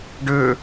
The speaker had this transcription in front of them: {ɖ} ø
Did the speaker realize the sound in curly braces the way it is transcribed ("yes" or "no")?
yes